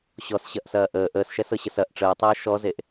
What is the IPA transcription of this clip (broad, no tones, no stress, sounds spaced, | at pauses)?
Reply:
ɕ ɔ s ɕ ɐ ʔ s ɐː ʔ əː ʔ əː s ʃ ɛ s ɤ ɕ ə s ɐ ʔ ʈ͡ʂ əː tˤ əː ʃ ɔ z e ʔ